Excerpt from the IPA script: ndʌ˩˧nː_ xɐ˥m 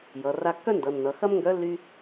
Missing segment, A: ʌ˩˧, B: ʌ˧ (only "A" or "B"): A